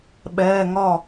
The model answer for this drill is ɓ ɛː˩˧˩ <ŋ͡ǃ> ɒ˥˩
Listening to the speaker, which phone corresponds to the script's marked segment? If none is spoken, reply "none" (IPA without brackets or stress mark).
ŋ